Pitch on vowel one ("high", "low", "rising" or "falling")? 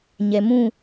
low